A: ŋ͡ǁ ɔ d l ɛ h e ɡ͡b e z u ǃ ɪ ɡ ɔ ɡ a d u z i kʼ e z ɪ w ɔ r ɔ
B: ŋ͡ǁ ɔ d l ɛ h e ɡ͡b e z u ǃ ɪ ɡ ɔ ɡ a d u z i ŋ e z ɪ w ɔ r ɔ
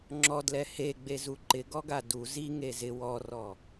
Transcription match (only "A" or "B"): B